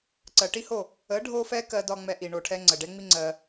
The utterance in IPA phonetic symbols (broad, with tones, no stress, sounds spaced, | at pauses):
ǀ ɜ˨ ʈ i˦ h o˦˨ | ə˨˦ ɖʱ o˦ f ɛ˦ k ɜ˧ d ɒ˦ ŋ͡m ɛ˧ ʔ i˨ ɳ o˨ ʈʰ ɛ˧ ŋ͡ǀ ə˨ ɖ ɛ˦ ŋ͡m i˦ ŋ͡ǀ ɜ˧